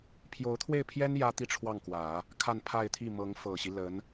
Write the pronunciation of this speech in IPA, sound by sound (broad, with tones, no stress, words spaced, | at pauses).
pʰjo˧˥ʊ̯t̪ʰwe˥˩ɪ̯pʰjɛ˥n jä˥t̪i˥˧ ʈ͡ʂʰwɑ˥˩ŋkwä˨˩˦ | kʰa˥˧npʰa˥˧ɪ̯t̪ʰi˥˩mɤ˧˥ŋ fɤ˨˩ɕi˦ lə˧˥n